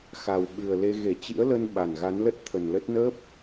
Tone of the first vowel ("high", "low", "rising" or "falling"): low